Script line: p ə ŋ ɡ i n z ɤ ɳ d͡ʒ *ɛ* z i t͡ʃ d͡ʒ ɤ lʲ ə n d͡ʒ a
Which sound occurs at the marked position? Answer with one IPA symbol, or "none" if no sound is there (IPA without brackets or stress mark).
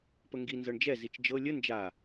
ɛ